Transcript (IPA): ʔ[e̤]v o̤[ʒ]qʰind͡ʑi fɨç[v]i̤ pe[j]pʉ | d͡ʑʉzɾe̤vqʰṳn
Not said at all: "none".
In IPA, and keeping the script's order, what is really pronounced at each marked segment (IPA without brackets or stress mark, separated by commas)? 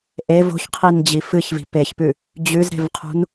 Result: e, ç, v, ç